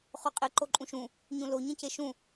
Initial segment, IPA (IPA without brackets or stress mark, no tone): χ